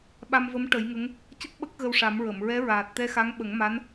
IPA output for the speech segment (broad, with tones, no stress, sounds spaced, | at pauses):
ɓ a˧ m v ə˧˥ m ʈ ə˨˩˦ j ŋ ə˧˥ ŋ | c ə˦˥ k̚ ɓ ə˦˥ k̚ ɣ ə˧ w ʂ a˨˩˦ m ɹ ə˨˩˨ m ɹ ɛ˧˥ ɹ aː˨˩ t̚ t̪ ɛ˧ x a˧˥ ŋ ɓ ə˨˩˦ ŋ m a˧˥ n